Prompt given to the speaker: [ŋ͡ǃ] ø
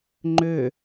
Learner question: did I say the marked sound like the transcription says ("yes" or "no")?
yes